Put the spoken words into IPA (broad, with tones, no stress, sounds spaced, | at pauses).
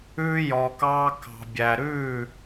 ʉː˧ j ɔ˩ k ɑː˧ k ɑ̤˩ bʲ æ˩ ɾ ʉː˥˩